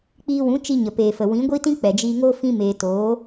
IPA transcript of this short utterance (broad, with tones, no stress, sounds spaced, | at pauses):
k͡p iː˧ w ũ˨˦ t͡ʃ i˧ ɲ ə˨ p eː˨ f ə˨ w ĩ˨˦ ɡʷ i˦ t ĩ˦ k͡p ɛ˨ d͡ʒ iː˧ ŋ oː˦ f ĩ˦ m eː˧ t oː˨˦